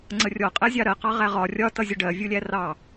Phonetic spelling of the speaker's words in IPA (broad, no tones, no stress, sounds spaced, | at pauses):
ŋ͡ǀ ə rʲ ɔ qʼ ɛ zʲ ɑ ɾ ɜ q ɑ ʁ æ ʁ ɒ rʲ ɒ t ʌ zʲ ʊ ɖ ɜ vʲ u lʲ æ r ɑ